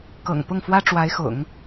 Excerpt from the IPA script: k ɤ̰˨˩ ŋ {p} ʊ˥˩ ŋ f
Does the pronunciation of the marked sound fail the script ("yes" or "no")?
no